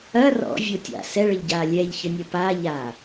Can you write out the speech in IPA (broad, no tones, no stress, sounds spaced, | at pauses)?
ɐ r ɔ̰ vʲ o tʲ a̰ s ɛ ɭ ə ʎ ɟ a lʲ ɛ ʎ ç ə nʲ ə p a ʎ a